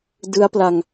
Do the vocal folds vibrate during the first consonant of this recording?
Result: yes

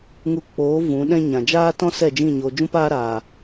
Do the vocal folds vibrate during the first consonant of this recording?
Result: yes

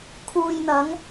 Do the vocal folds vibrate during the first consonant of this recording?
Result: no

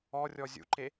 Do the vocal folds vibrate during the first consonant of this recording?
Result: yes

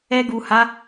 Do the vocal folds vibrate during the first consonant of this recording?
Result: yes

